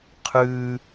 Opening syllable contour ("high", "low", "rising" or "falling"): high